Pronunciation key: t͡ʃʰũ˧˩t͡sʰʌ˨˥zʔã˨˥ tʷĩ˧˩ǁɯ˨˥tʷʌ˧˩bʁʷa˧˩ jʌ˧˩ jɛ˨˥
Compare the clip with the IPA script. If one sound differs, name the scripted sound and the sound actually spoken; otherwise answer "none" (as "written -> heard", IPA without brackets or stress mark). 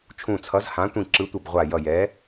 ʔ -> h